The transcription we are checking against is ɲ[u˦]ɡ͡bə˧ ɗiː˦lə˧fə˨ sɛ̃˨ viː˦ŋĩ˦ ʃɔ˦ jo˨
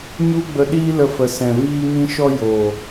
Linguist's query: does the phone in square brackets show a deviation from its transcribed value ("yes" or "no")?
no